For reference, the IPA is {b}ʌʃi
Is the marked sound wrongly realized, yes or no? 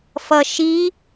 yes